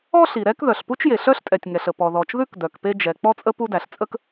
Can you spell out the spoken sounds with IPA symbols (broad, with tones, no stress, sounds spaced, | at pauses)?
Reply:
ɔ˥ ɬ i˩ ɾ ɛ˥ k ð œ˩ ɬ p u˥ t͡ʃ j e˩ ɬ œ˥ ɬ tʼ ɛ˩ tʲ ŋ ɛ˩ ɬ ə˩ p ɔ˩ ð ɔ˩ t͡ʃ ð ʉ˥ k d œ˩ k p e˥ d͡ʒ ɛ˩ k͡p ɔ˥ t͡sʼ ə˥ p u˥ d æ˩ ɬ t͡sʼ ə˥ k